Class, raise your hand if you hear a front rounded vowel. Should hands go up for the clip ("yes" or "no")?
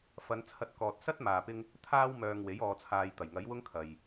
yes